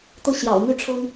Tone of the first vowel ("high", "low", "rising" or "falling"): falling